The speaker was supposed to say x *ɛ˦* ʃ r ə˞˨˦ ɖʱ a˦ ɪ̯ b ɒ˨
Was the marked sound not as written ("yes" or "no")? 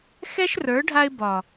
no